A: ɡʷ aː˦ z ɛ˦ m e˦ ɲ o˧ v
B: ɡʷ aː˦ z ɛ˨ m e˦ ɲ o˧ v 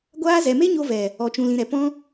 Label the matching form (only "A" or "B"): B